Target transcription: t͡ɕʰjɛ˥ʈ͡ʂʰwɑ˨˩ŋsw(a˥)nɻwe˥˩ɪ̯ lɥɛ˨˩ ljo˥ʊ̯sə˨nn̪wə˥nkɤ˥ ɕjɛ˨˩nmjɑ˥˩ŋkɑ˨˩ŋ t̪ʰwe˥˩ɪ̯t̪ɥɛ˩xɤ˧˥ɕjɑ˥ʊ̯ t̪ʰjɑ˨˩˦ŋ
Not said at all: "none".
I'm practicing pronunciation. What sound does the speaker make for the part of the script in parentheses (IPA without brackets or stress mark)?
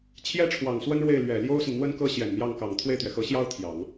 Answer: ə˥